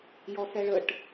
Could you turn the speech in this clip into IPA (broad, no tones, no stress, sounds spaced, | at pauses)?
j ɔ s ɛ ɭ ə ʈ